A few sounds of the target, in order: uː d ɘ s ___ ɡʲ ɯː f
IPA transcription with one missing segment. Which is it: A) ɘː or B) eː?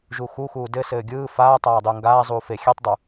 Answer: A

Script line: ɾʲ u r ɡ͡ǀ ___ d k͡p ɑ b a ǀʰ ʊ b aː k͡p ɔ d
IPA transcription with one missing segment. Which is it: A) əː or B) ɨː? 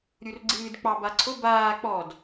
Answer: B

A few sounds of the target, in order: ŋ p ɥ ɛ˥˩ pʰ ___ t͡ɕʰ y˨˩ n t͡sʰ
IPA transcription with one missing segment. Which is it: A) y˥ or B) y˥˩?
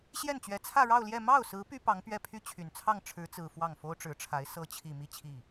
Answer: A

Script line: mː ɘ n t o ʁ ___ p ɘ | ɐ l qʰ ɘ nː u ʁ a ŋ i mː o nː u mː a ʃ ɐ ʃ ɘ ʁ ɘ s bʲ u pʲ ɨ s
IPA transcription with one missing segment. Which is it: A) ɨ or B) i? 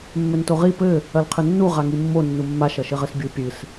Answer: B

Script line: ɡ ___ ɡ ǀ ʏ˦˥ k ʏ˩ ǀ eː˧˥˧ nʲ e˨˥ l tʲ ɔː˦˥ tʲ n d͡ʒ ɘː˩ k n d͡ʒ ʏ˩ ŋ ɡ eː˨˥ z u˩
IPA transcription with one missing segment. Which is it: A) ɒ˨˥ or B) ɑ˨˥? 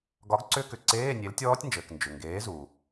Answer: A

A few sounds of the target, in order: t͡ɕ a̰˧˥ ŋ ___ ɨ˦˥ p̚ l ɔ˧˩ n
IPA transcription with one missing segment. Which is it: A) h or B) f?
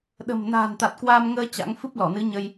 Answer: B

